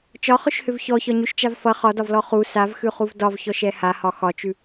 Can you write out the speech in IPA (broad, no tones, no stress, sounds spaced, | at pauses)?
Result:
t͡ʃ ɒ χ ʏ ʃ h ʏ v ç ɔ ç ɒ ɲ ʉ ʃ t͡ʃ a v f ʌ χ ɒ d ɒ v l ɔ χ u s a v x ʉ χ u v d ɒ v ç ɔ ʃ ɛ h a h ɒ x ɒ t͡ʃ ʉ